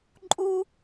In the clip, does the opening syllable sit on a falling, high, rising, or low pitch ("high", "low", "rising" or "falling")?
high